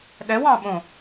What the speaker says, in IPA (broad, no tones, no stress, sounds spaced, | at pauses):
ɗ ɛ w ɑ̃ ɓ õ